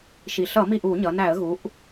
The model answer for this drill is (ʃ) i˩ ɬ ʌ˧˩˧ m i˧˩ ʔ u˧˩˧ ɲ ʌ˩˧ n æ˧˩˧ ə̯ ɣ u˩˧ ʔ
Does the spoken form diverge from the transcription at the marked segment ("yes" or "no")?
no